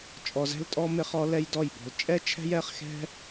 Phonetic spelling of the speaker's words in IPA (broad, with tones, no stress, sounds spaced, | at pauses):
t͡ʃʼ ɔ˧ z ɛ̤˦ l tʼ ɔ˦ m ɪ˧ χ ɔ˧ l ɛ˧ j d ɔ˦˨ j b ɔ̤˧ l t͡ʃʼ ɛ˦ t͡ʃʰ ɛ̤˦ j ɛ˧ χ x ɛ̤˦